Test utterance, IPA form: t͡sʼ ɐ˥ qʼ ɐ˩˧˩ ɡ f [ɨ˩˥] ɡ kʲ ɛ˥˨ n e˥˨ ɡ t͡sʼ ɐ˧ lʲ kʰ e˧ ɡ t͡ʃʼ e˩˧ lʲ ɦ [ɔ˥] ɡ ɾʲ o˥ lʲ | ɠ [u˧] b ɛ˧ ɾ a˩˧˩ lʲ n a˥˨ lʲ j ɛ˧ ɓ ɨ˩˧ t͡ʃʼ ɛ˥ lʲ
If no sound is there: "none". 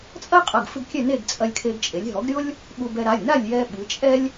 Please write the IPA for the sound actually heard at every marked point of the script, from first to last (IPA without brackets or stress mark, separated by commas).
ɨ˧, ɔ˩˥, u˧